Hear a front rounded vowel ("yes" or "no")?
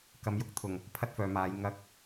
yes